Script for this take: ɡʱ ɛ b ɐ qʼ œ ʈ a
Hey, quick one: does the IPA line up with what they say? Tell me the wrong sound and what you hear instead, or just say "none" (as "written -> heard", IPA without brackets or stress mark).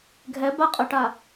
ɐ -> a